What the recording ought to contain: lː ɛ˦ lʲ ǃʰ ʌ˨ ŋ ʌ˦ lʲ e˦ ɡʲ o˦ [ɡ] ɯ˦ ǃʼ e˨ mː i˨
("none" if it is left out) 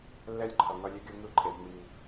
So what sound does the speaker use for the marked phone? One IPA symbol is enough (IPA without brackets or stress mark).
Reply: ŋ